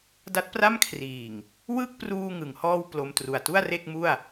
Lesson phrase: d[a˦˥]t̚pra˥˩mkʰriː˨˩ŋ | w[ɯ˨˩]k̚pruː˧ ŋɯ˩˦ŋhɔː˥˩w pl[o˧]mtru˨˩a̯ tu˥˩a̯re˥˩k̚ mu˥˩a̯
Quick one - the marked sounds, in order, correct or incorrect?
correct, incorrect: ɯ˥˩, correct

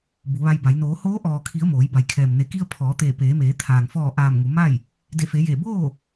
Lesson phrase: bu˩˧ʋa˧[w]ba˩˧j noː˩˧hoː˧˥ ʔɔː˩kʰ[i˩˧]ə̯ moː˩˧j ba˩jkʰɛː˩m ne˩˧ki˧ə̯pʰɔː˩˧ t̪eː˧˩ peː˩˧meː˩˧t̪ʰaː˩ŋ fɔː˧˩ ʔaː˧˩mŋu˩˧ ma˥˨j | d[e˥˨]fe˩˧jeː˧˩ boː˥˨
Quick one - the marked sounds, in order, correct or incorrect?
incorrect: j, correct, incorrect: e˧˩

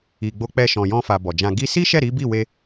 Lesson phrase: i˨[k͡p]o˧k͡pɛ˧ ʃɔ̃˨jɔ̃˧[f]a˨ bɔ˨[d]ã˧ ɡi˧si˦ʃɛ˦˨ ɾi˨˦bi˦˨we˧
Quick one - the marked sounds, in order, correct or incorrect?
incorrect: ɡ͡b, correct, incorrect: d͡ʒ

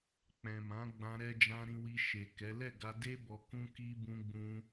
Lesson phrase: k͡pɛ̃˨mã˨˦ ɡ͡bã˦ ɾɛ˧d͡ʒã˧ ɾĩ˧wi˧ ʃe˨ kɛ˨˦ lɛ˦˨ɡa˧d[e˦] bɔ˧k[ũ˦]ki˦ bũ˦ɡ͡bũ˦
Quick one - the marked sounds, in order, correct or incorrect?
correct, correct

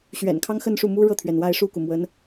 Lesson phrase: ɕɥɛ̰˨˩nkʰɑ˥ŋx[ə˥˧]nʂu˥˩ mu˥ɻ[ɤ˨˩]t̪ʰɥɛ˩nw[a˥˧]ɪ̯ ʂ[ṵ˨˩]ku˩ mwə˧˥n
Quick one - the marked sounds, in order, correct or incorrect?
correct, incorrect: ɤ˥˩, correct, incorrect: u˥˩

